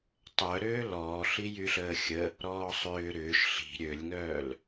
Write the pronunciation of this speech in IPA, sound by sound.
tˤœɾøː lɔː ɬijyɬəːxʲə | ɾɔːsˤʏː ɾʏːʃ ɬi̤ ɾʲølʲŋœːl

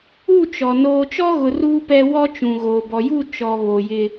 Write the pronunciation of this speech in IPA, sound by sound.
u˦˨t͡ʃɔ˨ noː˨t͡ʃɔ˦ɣʊ˨ ruː˨pɛ˨ wɔ˦t͡ʃũ˨ɣoː˨ bɔ˨ju˦˨ t͡ʃɔ˨ βo˨jɪ˦

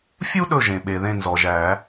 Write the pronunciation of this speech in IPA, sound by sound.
fʲu˥ ɗɵ˦˨ʒẽ˩ɓe˩ ðẽ˦˨nzɔ˩ʒæ˨˩˦

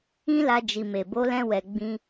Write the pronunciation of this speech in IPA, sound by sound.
ĩ˦la˧ d͡ʒi˨me˨ bo˨˦lɛ̃˧wɛ˨ ɡ͡bĩ˧

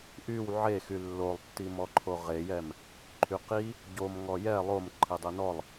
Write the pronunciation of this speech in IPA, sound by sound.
ʔyw ʕexy lːolˠtːimɔǃʰo ʁejɛm | ǃʰyqi | ɟom ŋɔjɛ lˠomǃʰi dˤinɔlˠ

